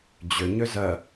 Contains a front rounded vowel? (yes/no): yes